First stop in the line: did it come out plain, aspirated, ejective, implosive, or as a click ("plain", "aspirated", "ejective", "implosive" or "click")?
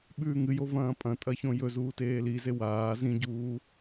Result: implosive